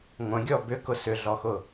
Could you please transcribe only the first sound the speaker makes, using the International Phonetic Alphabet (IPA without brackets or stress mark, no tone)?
ŋʷ